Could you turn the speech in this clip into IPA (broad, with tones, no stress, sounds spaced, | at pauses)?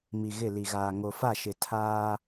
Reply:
m i˨ ɣ ɪ˦˨ l i˨ ɣ aː˨ ŋ o˨ f a˦˨ ʃ ɪ˨ tʰ aː˦